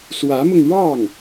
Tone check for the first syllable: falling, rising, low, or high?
rising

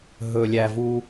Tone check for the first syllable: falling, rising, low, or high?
low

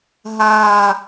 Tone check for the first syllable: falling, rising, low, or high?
low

